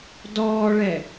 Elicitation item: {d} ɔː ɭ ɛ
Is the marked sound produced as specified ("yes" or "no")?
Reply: yes